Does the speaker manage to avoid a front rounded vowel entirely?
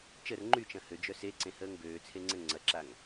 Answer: no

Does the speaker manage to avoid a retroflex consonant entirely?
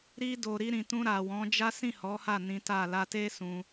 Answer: yes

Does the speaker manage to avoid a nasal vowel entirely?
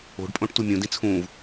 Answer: no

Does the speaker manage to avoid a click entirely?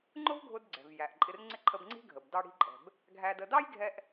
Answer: no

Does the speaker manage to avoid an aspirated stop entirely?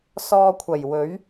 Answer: no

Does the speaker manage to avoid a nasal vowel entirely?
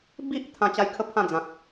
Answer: no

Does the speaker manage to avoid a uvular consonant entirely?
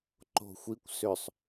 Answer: yes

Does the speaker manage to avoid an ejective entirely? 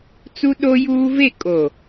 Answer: no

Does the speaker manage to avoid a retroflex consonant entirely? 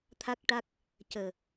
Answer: no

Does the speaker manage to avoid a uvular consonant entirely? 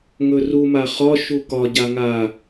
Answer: no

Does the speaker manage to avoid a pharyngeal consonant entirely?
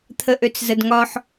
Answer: no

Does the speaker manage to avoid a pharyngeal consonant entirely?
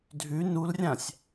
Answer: yes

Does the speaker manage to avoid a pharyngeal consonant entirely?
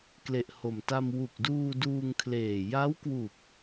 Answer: yes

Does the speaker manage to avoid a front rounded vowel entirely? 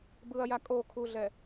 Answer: yes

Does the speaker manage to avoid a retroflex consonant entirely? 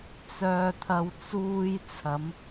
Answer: yes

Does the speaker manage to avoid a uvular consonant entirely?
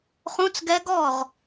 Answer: no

